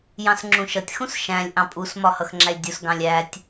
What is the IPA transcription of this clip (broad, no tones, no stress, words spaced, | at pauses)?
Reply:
jɑ̃sŋ͡ǁũʃʌtʲ xũsʃæ̃lʲ ʔɑ̃pʼus mɒhʌxŋ͡ǁælʲdʲus ɡɑ̃lʲætʲ